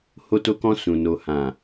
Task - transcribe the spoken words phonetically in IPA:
h o˧ t o˧ k ɔ̃˧ s ũ˨ n o˨ h ã˨

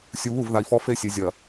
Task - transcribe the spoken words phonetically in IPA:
sʲ u˨ β u˦˨ v ð a˨ i̯ f ɔ˦ f e˦ sʲ e˨ zʲ ɐ˨

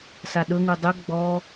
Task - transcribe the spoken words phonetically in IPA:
s a ɗ ɵ ŋ u dˤ ɵ ɡ͡b ɔ

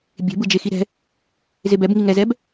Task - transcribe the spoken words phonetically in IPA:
bʲ e̤ b ɯ d͡ʒ e x i ɾ ɛ̤ | z e b ɛ b ŋ i ŋ ɛ z ɛ b

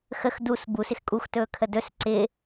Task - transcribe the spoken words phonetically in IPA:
x ə x d u s b u s ɪ x kʼ u x t ɵː kʰ ə d ɵ s ǀ ɪ

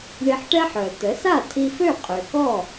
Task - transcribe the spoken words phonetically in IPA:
ɳ i˧ ħ ʈ ɛ˥ ħ œ˩ ə̯ t̪ ə˩˥ s a˥˩ tʰ i˧ f ø˥˩ qʼ ø˩ k ɔ˥˩

